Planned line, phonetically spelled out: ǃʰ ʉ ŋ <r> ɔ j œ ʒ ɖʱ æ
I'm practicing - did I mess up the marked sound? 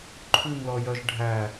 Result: yes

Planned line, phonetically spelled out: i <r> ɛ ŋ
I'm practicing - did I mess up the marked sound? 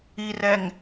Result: no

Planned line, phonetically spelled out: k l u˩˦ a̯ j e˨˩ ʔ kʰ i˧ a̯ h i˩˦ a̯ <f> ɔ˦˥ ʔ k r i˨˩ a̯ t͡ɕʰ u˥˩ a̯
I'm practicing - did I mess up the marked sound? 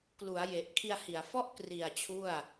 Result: no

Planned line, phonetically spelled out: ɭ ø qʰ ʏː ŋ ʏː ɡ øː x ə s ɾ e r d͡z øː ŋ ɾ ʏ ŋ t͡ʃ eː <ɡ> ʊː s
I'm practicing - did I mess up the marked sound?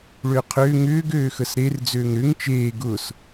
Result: no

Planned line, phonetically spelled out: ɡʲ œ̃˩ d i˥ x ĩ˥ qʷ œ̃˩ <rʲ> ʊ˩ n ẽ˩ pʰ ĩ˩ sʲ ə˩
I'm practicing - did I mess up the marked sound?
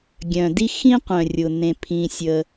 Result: no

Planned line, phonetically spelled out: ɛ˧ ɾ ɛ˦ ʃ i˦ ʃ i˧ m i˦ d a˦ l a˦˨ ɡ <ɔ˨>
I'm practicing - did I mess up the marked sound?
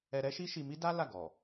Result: no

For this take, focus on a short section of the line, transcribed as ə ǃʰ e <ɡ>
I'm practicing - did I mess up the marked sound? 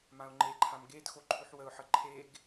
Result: no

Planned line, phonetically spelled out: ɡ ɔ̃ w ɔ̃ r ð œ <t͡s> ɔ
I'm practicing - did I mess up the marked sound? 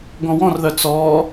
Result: no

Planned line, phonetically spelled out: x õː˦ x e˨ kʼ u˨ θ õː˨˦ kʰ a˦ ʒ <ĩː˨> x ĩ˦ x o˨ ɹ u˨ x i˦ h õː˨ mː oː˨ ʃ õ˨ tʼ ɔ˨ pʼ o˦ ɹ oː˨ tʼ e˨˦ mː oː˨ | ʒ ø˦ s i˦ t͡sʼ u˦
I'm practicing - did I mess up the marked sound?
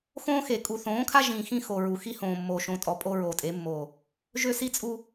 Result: no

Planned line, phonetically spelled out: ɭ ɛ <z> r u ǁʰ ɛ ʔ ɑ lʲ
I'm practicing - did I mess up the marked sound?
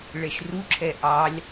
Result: yes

